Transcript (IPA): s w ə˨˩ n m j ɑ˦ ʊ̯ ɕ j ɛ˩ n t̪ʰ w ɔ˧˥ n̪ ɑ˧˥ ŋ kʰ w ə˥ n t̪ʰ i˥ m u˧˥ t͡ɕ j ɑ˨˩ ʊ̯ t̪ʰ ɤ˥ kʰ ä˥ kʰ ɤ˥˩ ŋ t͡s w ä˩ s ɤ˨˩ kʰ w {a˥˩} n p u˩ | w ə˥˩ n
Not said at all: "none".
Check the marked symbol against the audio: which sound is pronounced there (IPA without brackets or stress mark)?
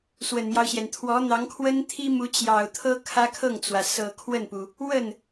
ə˥˩